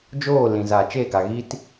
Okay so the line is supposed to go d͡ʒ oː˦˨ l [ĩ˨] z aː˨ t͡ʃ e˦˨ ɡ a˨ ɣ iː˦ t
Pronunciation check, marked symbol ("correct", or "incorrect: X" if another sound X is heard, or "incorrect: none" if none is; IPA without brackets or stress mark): correct